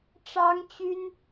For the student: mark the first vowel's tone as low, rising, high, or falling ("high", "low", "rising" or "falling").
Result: high